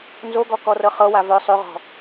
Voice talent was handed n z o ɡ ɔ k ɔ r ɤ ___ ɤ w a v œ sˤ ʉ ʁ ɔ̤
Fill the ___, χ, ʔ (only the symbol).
χ